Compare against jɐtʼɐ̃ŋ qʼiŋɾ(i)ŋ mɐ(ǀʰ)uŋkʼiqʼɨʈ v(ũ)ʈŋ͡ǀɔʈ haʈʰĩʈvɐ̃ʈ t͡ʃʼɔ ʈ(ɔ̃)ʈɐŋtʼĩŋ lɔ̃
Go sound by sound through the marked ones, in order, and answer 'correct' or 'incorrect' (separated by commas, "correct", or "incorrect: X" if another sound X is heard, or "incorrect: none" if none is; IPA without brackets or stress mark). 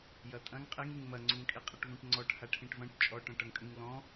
correct, incorrect: ŋ͡ǀ, correct, correct